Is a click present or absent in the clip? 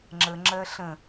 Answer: present